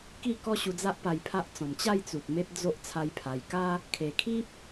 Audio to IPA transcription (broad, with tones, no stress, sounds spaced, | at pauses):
k i˥˧ k ɔ˦ ɕ u˧ d͡z a˦ ʔ p a˧ j pʰ a˦ ʔ t͡s ɔ̃˨˩ m t͡ɕ a˥˧ j t͡s u˨ t̚ m e˦ p̚ d͡z o˦ ʔ t͡sʰ a˦ j pʰ a˧ j k a˦ | kʰ e˨˩ kʰ i˦ p̚